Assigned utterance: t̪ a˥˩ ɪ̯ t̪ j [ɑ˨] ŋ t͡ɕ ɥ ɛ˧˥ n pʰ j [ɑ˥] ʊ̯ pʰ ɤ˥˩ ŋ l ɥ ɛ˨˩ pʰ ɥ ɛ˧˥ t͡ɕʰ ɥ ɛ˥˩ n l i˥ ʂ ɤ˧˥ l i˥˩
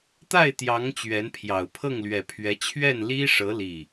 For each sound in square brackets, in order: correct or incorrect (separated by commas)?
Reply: incorrect, incorrect